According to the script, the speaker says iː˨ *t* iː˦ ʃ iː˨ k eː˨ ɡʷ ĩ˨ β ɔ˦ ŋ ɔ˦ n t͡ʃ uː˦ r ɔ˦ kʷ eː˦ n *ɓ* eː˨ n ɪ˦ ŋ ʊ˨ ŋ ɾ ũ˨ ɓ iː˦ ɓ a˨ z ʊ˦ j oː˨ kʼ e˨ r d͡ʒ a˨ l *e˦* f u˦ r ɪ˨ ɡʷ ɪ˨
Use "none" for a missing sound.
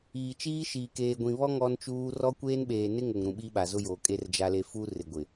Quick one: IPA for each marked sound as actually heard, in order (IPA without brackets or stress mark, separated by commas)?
t͡ʃ, ɓ, e˨